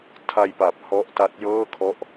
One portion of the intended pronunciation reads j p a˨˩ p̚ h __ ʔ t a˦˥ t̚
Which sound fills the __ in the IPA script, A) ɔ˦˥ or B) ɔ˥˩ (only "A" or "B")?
A